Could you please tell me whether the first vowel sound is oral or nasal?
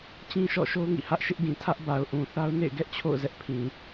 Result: nasal